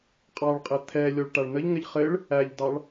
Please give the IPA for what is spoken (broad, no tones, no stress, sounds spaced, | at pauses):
qʼ ɑ ɭ qʼ ɘ t̪ʰ ɛ lʲ ɔ ɭ ʈ a ɭ n̪ ə ʎ ŋ ɘ ʎ χ ɘ ɭ | æ ʎ d ɑ ɭ